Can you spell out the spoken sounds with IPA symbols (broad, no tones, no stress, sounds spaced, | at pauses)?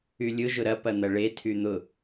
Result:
y lʲ ʊ ʒ ʊ ɾ ɐ p ɐ n̪ ɐ ɭ e tʰ y n̪ ʊ